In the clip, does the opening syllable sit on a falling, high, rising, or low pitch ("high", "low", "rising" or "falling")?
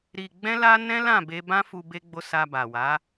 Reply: low